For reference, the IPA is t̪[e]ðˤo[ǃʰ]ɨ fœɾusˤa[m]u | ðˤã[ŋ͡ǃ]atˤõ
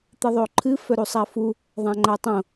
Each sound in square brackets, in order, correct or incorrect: incorrect, correct, incorrect, correct

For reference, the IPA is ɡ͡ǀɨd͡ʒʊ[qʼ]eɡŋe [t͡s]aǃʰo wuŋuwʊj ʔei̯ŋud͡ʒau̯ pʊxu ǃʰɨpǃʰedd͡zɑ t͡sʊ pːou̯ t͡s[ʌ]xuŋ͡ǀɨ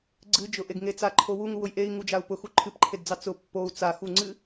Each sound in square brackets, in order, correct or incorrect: incorrect, correct, incorrect

